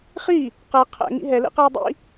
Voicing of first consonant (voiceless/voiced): voiceless